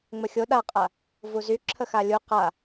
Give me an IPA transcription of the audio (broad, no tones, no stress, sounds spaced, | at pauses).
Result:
ŋ͡m ə xʲ o ɗ a qʼ a | v u z y ǁʰ ə x a lʲ u q a